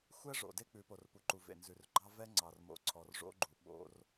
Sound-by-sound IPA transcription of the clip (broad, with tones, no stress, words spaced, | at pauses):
xʷɛ˦ ʐo̰˨de˦ k͡pʉ˨˦po˨rpu˨ǃu˨ vḛ˨nzʉ˨r ɡ͡ǃɑ˦ vɛ˦ŋ͡ǀɑ˨rmo̰˨ ǀʰɔ˨rʐo̰˦ɡ͡ǃu˨ ɓo̰˦r